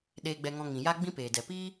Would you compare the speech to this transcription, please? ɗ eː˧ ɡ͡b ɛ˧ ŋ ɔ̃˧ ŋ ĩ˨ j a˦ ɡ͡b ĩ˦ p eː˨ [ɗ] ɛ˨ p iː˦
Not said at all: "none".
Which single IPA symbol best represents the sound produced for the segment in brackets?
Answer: d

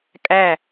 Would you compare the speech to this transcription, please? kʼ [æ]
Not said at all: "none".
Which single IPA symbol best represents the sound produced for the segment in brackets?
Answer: æ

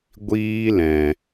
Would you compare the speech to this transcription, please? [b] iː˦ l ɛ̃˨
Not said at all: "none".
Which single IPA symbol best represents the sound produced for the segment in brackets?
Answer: ɡʷ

